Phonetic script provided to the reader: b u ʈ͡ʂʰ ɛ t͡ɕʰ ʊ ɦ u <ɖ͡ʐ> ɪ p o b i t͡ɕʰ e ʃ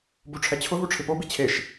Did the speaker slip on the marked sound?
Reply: yes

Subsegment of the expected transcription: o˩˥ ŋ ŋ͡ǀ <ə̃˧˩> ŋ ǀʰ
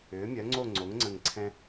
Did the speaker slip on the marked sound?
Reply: no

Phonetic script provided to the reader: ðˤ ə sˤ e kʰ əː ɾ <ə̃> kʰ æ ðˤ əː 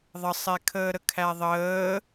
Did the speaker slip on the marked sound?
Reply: yes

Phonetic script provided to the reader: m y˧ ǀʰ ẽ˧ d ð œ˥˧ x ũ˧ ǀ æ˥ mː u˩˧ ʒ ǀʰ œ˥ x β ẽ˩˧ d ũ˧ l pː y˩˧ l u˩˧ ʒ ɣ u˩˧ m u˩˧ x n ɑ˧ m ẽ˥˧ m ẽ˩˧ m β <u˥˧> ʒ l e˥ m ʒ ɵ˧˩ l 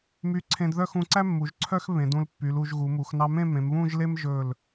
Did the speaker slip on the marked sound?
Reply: yes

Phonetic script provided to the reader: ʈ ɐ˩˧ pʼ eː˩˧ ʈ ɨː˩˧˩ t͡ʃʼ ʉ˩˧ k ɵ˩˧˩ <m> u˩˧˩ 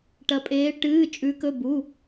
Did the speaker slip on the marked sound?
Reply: yes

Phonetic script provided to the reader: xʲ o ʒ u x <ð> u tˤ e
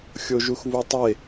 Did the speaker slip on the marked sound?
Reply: yes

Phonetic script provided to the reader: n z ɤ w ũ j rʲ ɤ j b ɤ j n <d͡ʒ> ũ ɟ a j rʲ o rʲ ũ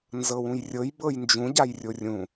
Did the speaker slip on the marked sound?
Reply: no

